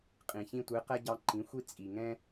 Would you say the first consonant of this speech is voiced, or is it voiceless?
voiceless